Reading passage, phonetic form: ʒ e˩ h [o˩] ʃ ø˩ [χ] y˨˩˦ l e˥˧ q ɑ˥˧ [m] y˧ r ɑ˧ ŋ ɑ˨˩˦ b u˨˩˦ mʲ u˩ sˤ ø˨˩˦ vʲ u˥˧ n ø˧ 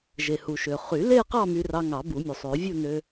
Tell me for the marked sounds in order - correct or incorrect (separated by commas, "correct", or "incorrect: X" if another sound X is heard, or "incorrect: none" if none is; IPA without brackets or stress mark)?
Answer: incorrect: u˩, correct, correct